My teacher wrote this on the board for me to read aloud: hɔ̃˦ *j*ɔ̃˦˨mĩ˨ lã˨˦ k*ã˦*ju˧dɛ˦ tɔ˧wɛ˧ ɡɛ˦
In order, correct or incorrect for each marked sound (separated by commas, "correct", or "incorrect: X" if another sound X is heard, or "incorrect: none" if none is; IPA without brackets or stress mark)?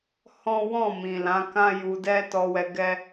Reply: incorrect: w, correct